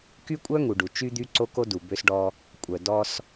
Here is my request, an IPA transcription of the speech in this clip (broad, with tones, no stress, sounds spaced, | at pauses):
k y˦ kʷʼ œ˦ ŋ u˨ ɖ u˨ t͡ʃ y˦ d̪ y˦ ǀ o˦ k o˦ d u˨ b ø˦ s ɖ ɔ˦ | kʷʼ œ˨ d ɔ˦ s